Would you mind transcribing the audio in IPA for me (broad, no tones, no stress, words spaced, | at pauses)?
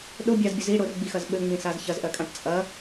ɗʊ bʲazbʲʊ zi ɽʊrɡ͡bixɐz ɓɘŋ͡mĩsaz çɐzʔɜkʼãʈ t͡sʼɐ